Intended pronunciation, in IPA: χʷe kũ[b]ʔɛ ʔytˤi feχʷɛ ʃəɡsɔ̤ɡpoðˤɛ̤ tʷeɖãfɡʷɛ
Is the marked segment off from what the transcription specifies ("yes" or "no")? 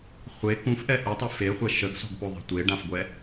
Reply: yes